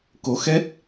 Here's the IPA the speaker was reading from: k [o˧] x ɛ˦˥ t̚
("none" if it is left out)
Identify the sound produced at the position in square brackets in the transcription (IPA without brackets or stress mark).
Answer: o˧˥